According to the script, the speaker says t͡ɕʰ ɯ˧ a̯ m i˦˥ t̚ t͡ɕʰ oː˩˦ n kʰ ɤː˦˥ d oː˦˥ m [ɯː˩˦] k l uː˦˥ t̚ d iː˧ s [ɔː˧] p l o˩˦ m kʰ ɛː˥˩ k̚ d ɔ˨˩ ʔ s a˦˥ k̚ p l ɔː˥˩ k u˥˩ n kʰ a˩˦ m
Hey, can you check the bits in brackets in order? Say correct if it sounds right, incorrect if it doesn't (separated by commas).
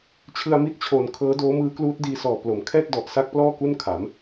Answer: incorrect, incorrect